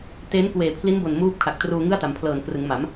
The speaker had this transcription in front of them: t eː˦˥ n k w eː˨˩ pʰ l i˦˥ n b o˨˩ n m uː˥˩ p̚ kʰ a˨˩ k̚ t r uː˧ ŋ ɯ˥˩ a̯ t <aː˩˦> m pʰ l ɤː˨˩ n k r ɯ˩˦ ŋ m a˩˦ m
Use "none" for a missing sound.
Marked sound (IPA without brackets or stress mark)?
a˩˦